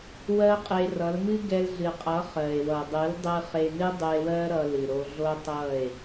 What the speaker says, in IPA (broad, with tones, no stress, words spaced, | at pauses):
wɜ˦qʼe˧rʌ˨˦l mɨ˦ɡɛ˧lɮɨ˨qʼʌ˨˦ χɜ˨e̯wʌ˨dˤɨ˨˦ldˤɨ˧ χe˧nɨ˦ dˤɨ˧e̯wɜ˦ ɾʌ˧lɨ˨ ɾo˧ɮo˦ tˤʌ˦˨e̯